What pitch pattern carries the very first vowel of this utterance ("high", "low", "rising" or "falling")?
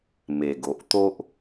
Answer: low